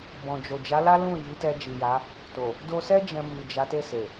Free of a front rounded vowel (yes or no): yes